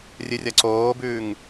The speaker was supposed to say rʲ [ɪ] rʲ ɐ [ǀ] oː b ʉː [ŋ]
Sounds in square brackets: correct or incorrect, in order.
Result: incorrect: ɨ, correct, correct

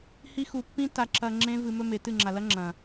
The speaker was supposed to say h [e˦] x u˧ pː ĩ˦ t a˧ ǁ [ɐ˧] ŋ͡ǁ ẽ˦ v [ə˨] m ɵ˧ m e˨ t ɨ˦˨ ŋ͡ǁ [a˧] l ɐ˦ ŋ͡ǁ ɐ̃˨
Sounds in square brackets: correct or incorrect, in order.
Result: incorrect: i˦, correct, incorrect: ɨ˨, incorrect: a˨

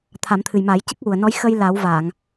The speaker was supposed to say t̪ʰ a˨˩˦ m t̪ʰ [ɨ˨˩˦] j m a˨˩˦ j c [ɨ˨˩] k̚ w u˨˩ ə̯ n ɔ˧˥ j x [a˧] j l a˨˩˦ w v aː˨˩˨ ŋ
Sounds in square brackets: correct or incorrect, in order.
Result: incorrect: ɨ˨˩, incorrect: ɨ˦˥, incorrect: ə˧

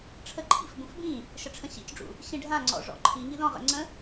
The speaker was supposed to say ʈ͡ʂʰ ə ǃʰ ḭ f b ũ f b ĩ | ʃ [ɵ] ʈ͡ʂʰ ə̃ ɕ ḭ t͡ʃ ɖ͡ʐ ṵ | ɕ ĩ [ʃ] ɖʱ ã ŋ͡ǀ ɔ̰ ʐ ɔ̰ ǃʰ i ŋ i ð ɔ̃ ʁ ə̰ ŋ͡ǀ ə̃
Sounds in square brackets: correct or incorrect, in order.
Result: incorrect: ə, incorrect: none

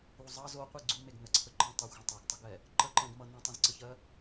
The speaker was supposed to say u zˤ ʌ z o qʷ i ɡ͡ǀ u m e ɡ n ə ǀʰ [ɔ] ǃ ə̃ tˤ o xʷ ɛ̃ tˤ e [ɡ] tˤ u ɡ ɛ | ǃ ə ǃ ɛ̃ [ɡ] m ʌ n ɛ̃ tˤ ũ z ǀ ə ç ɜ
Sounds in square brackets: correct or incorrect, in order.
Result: incorrect: ə, correct, correct

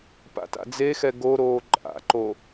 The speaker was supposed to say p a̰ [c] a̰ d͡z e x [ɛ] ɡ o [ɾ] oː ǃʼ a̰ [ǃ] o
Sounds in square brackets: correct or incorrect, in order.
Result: incorrect: t, correct, correct, correct

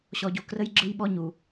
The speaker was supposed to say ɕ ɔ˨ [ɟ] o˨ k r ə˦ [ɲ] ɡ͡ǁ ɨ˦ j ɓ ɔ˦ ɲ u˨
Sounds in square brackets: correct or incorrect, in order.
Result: correct, incorrect: j

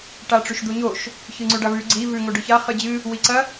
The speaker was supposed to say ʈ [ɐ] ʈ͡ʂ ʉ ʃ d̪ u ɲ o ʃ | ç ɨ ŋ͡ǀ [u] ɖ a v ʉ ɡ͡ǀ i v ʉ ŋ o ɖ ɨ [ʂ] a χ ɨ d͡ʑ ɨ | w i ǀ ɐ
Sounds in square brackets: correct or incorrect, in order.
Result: incorrect: a, incorrect: ʉ, incorrect: ç

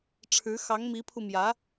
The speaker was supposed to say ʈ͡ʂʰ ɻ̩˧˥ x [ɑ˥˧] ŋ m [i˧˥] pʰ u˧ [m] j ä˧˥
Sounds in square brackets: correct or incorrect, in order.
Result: incorrect: ɑ˧˥, correct, correct

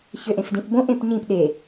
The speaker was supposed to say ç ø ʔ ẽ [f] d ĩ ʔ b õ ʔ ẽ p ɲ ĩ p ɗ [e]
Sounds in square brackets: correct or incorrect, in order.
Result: correct, correct

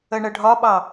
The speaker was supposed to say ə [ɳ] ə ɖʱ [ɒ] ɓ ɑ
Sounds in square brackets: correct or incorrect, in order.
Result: correct, correct

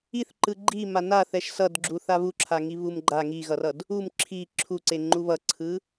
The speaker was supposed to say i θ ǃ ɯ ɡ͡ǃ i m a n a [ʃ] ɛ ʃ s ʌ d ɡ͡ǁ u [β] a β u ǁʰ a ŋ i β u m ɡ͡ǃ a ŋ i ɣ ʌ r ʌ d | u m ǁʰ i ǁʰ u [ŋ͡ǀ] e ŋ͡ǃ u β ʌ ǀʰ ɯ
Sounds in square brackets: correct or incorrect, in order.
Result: incorrect: θ, incorrect: θ, incorrect: ǀ

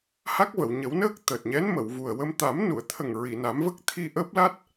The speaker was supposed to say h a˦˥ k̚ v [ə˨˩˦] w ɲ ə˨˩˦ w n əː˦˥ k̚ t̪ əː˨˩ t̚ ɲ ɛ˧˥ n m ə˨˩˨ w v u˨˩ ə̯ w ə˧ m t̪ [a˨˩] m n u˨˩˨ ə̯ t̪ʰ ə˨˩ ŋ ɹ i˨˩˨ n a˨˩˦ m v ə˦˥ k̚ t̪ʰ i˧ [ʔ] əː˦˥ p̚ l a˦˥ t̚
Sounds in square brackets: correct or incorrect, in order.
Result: incorrect: ə˨˩˨, incorrect: a˨˩˦, correct

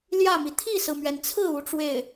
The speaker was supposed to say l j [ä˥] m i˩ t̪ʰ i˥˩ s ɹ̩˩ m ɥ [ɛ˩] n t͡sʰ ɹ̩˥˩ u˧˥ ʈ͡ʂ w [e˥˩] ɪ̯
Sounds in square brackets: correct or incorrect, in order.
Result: incorrect: ä˥˩, correct, correct

